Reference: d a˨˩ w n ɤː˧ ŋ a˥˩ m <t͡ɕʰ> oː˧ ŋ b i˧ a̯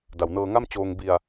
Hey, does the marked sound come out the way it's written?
no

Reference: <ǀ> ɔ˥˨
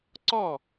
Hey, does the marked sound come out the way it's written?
yes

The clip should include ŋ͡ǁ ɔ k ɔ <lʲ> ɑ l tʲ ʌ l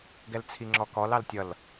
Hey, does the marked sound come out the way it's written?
no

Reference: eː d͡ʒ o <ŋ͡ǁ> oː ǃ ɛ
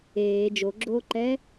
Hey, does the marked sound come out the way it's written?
no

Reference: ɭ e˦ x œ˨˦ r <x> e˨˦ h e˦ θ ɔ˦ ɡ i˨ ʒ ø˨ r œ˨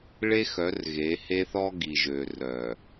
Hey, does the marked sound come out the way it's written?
no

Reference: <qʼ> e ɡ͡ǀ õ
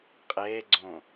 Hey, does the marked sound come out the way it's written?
yes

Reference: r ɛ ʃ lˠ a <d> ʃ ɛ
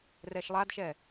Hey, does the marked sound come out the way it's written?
yes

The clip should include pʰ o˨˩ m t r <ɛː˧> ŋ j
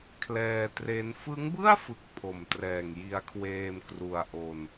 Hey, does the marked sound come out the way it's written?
no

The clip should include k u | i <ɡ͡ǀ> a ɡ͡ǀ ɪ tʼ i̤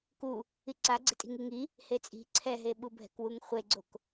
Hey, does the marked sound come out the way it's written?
no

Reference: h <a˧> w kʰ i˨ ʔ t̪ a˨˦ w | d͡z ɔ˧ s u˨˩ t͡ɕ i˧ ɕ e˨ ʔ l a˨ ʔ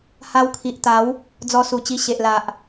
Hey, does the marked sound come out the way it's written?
yes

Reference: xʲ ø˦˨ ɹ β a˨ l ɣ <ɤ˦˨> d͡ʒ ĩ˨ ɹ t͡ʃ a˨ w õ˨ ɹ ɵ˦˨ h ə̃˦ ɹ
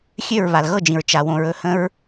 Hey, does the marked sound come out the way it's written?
yes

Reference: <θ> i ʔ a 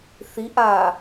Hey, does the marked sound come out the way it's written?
yes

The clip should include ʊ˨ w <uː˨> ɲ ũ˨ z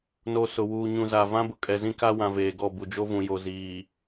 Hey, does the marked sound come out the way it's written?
yes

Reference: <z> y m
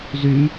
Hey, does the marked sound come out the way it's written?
yes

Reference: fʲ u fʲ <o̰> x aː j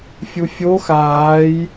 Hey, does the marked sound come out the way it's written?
no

